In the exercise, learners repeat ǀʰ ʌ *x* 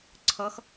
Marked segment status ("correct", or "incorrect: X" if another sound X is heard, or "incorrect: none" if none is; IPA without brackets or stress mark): correct